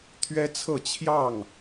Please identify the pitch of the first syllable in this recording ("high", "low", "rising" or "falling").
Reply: high